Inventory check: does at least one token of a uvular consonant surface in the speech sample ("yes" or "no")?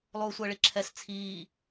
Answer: no